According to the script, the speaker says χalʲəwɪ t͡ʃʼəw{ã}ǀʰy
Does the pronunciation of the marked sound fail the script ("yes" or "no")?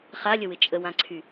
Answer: no